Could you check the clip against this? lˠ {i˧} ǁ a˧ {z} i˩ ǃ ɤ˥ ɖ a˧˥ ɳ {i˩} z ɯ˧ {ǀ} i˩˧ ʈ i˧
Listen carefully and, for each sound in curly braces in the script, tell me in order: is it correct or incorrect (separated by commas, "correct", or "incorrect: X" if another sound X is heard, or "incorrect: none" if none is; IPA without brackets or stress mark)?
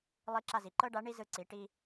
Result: incorrect: i˧˥, correct, incorrect: i˥, correct